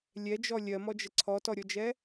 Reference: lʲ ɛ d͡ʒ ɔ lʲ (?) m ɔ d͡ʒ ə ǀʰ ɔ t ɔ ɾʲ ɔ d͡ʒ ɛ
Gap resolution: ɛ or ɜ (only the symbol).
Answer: ɜ